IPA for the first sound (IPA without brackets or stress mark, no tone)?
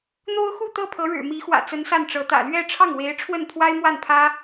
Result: n̪